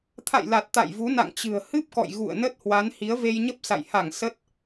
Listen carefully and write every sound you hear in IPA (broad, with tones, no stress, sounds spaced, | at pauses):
t̪ʰ a̰˧˨ j l a˨˩ t̚ t̪ a̰˧˨ j v u˨˦ n a̰˧˨ ŋ t͡ɕ ɨ̤˨˩ ə̯ h ɨ˦˥ p̚ k ɔ̰˧˨ j ɣ ṵ˧˨ ə̯ n ə˦˥ t̚ h w a˨˦ n h i˨˦ ə̯ v e˧ j ɲ ə˦˥ p̚ s a̰˧˨ j h a˧˩ ŋ s ə˦˥ t̚